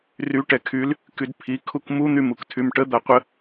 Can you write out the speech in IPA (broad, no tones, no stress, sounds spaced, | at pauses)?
r y ʈ ɛ kʰ y l | k y d pʰ i kʰ u k m u n̪ y m u k tʰ y m ʈ ə d̪ a qʷ ə